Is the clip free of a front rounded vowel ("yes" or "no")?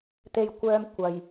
no